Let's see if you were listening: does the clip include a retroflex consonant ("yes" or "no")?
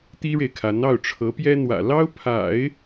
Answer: yes